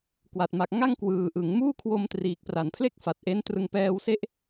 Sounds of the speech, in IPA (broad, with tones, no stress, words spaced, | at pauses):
kwa˨˩t̚ma˨˩k̚ ŋa˥˩ŋ kwɯː˨˩ʔɯ˩˦ŋ muː˥˩kʰwo˧m triː˨˩k̚pra˨˩n pʰle˥˩k̚fa˨˩t̚ʔe˦˥ntrɯ˧ŋ pɛː˧wse˦˥ʔ